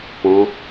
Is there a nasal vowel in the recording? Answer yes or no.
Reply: yes